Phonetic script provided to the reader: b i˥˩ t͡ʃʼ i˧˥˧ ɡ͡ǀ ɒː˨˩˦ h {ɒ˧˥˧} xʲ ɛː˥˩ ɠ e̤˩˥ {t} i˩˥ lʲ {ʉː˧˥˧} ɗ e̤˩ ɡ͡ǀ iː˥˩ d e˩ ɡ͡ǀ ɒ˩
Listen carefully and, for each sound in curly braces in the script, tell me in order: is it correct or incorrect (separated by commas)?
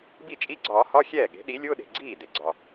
correct, incorrect, incorrect